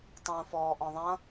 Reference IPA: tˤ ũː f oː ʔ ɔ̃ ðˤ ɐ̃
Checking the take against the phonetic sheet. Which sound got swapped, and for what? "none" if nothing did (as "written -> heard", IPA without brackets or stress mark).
oː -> ɔː